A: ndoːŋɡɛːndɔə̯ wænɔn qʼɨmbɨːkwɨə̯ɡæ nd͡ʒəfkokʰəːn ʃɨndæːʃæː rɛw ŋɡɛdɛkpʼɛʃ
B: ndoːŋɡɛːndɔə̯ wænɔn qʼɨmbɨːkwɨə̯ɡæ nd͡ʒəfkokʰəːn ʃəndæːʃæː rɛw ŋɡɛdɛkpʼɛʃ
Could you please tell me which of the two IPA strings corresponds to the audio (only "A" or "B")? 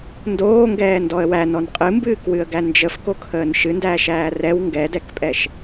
A